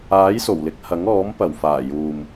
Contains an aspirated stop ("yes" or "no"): no